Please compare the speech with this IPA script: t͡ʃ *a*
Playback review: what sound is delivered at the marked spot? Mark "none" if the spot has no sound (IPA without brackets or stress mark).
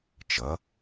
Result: ʌ